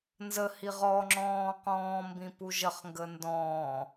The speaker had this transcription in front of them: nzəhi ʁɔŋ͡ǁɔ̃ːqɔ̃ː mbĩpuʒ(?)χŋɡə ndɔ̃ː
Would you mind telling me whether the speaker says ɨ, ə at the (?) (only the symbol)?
ə